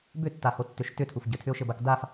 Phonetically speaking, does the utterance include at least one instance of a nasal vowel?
no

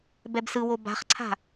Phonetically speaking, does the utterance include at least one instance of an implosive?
no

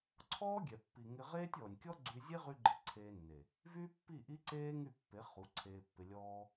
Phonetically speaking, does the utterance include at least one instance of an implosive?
no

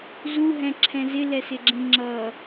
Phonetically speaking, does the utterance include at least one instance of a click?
yes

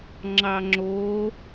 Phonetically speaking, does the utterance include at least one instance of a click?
yes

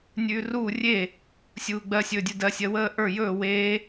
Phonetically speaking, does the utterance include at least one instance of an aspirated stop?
no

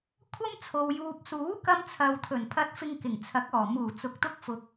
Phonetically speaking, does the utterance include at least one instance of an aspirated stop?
yes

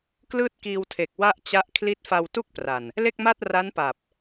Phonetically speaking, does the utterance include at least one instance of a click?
no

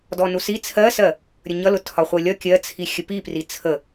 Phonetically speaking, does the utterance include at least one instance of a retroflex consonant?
no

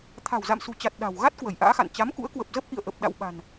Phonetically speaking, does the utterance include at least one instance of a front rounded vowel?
no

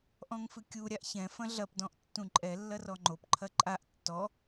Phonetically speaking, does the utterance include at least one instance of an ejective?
yes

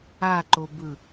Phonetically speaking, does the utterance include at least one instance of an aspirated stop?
no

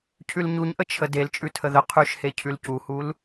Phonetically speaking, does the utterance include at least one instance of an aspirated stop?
yes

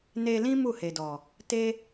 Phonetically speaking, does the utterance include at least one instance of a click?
no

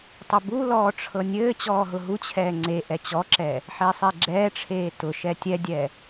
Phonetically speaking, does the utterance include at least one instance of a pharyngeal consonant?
yes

